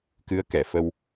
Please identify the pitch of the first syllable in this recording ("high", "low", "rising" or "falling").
rising